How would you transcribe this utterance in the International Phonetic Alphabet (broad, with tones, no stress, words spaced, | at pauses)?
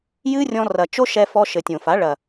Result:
jɨ˦rʲɔ̃˧rɐ˨ t͡ʃo˦ʃɛ˧ fɔ˧ʃɘ˨tʲõ˨fa˨˦ ɭɐ˨